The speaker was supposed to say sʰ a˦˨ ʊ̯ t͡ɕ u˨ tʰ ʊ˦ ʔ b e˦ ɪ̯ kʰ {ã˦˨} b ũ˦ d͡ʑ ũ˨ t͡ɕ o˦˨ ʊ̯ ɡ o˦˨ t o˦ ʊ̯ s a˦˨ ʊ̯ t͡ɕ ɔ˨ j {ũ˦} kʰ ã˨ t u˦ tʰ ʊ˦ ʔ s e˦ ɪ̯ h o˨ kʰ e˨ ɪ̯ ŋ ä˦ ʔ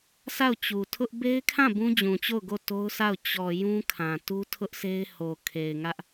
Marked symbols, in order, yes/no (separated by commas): yes, yes